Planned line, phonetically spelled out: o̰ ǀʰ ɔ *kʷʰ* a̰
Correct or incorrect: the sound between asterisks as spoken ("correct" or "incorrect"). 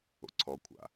correct